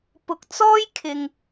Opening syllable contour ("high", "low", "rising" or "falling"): low